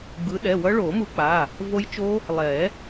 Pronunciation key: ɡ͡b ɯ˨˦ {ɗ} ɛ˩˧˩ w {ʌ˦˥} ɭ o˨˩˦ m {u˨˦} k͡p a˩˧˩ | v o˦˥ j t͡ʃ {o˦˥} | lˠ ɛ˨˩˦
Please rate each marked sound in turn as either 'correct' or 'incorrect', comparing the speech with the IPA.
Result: correct, correct, correct, correct

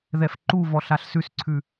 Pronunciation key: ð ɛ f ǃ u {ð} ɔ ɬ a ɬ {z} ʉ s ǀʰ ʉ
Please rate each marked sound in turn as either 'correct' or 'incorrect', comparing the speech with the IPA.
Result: incorrect, incorrect

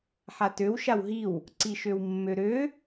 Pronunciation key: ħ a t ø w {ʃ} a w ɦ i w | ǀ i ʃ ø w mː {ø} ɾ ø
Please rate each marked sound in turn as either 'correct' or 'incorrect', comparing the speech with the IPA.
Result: correct, correct

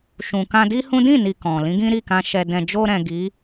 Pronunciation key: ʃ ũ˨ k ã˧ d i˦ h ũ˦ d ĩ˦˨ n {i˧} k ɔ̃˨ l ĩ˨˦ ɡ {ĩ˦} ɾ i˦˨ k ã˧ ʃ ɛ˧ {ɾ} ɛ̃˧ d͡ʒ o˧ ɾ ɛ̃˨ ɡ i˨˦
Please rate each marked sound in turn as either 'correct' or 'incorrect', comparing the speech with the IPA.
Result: incorrect, correct, incorrect

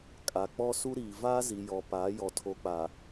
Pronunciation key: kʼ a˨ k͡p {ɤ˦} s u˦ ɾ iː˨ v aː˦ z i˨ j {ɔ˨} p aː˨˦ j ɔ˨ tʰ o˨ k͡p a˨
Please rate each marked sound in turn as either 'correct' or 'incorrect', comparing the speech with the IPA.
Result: incorrect, correct

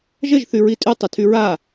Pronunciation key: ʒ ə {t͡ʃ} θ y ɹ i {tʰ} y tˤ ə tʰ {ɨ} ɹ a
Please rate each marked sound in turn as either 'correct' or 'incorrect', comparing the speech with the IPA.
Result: incorrect, incorrect, incorrect

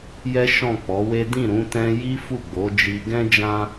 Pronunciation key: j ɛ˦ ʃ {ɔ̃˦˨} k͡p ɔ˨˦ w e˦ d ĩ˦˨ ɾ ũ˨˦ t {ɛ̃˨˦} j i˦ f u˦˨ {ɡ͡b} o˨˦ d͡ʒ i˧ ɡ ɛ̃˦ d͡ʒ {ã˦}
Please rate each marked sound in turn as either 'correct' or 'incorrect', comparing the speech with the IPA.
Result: correct, incorrect, correct, correct

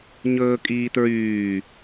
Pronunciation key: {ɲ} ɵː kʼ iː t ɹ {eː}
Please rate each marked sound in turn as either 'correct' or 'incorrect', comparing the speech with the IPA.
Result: correct, incorrect

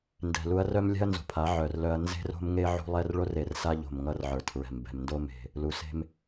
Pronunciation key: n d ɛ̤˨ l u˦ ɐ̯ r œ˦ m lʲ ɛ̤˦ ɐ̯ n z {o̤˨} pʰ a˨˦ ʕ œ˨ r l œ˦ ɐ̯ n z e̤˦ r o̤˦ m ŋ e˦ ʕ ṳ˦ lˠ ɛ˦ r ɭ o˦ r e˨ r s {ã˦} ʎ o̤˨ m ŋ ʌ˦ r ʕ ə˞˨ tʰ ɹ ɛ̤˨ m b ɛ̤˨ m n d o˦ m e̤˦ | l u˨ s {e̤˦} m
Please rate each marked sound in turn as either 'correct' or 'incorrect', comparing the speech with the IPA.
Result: correct, incorrect, correct

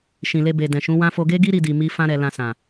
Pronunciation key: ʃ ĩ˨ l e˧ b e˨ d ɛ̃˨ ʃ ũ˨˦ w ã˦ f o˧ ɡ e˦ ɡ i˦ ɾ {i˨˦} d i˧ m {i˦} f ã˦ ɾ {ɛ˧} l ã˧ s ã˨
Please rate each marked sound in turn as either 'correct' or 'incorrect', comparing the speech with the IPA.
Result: incorrect, correct, correct

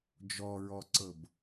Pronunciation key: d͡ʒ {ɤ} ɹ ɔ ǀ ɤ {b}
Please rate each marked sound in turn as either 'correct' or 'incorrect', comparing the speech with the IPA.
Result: incorrect, correct

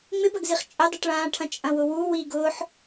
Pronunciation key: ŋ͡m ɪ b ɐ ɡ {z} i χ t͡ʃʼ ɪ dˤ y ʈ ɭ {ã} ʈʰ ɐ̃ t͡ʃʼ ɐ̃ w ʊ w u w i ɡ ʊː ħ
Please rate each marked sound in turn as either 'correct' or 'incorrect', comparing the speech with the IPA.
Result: correct, incorrect

